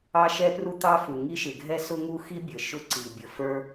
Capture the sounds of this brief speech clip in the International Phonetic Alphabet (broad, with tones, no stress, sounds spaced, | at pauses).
ɑ˥ ʃ ɛ˥ p r u˥ t̪ ɑ˥ f u˩ ŋ i˥ ʃ ɪ˩ ɡʱ ɛ˥ s ʊ˥ ŋ u˥ x i˥ bʲ ə˩ ʃ ʊ˥ ǀ i˩ bʲ ə˩ f ə˞˥